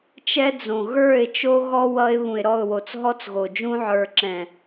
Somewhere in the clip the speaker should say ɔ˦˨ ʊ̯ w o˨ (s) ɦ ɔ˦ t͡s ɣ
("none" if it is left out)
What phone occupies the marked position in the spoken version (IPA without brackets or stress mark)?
t͡s